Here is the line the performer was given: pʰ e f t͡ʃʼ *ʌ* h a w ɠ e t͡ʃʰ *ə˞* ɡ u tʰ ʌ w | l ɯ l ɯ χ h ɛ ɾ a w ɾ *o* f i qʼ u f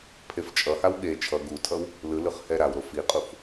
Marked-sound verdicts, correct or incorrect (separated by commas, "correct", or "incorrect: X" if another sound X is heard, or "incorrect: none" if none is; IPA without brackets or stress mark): correct, incorrect: ʌ, correct